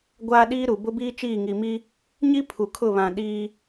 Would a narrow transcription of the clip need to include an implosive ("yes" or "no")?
yes